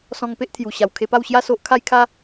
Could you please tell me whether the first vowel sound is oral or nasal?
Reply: nasal